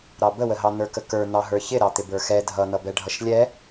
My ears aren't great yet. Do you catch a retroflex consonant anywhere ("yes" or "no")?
yes